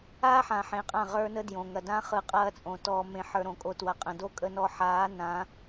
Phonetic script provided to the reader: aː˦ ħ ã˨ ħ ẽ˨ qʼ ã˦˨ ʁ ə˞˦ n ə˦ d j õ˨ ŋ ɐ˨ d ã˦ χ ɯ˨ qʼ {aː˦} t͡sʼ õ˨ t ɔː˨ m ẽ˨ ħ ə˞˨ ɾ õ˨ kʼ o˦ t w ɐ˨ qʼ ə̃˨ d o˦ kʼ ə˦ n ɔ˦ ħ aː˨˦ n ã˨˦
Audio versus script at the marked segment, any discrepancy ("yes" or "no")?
yes